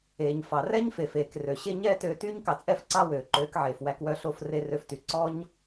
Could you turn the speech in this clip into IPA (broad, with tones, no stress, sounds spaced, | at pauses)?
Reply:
eː˨ ɲ f ɑ˨ r ɛ˦ ɲ f e˨ f eː˨ k r ø˨ ɕ e˦ ɲ ɛː˦ t øː˧ t yː˦ ɲ k ɑ˧ t͡sʼ ɛː˦ f ǀ ɑ˦ w øː˨ ǃ øː˨˦ k ʕ eː˨ f w æ˧ k w œ˧ ɬ o˦˨ f r e˧ r ø˧ f t y˨ ǀ ɔ˦ ɲ